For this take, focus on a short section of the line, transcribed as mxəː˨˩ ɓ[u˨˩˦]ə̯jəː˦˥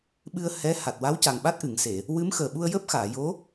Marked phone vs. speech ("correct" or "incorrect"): incorrect